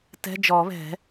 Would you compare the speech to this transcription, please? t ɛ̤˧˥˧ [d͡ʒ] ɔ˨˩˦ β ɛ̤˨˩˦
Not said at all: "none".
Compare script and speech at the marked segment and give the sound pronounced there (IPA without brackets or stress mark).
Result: d͡ʒ